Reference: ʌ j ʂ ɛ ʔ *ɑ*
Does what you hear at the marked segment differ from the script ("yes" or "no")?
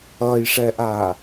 yes